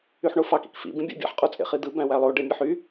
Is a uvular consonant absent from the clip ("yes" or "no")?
no